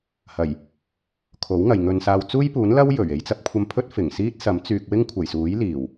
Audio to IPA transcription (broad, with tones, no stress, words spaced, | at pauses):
hɐ˨˩j | kʰo˨˥wŋɐ˨jŋɵ˧nsaː˧w t͡suː˥jpuː˨˥nlɐ˥w jɵ˨˩ɥ e˨˧jt͡sɐ˧p̚kʷʰɐ˧mpʰɵ˥t̚ fɪ˨˩ŋsiː˥t̚ sɐ˨˥m t͡syː˨k̚wɪ˥ŋkʷʰɐ˨˩j suː˨˥jliː˨˩w